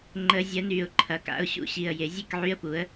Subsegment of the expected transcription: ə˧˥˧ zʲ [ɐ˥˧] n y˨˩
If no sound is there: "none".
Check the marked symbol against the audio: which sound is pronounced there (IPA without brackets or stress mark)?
ɐ˧˥